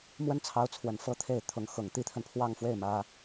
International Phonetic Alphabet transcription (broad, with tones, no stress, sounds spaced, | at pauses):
m w ə˥ n t͡sʰ ɑ˧˥ ʊ̯ t͡sʰ w ə˨˩ n f ɤ˥˧ t̪ʰ e˥˩ ɪ̯ t̪ʰ ʊ˧˥ ŋ x ʊ˨˩ ŋ t̪ i˥ t̪ʰ ə˨ n pʰ w ɑ˥˧ ŋ f w e˥˩ ɪ̯ m ä˥